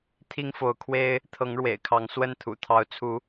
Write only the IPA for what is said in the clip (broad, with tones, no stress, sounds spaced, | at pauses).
t̪ʰ i˦ ŋ f o˨˦ ʊ̯ kʰ w e˦ ɪ̯ | t̪ʰ ɤ˨˦ ŋ ɻ w ḛ˨˩ ɪ̯ kʰ ɑ˨˦ ŋ s w ə˥˨ n t̪ʰ ṵ˨˩ t̪ʰ ɑ˨˦ ʊ̯ t͡sʰ u˨˦